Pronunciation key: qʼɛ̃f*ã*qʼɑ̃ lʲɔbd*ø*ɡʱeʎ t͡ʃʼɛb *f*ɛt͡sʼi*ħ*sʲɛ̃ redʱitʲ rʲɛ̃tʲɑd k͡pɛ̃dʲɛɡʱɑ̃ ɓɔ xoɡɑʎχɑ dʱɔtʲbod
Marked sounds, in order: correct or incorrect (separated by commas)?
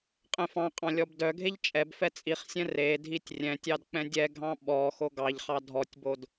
incorrect, incorrect, correct, incorrect